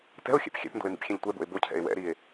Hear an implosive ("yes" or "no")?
no